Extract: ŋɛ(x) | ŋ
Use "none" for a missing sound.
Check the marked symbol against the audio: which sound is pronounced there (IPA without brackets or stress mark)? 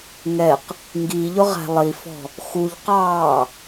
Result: q